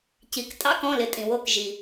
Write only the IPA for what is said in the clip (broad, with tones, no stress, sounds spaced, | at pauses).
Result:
c i˩˧˩ k tʼ ɑ̰˧˥˧ k ɔ̃˩˧˩ l ɪ˩˧ tʼ ĩ˩ w o˧˩ k ʒ i˩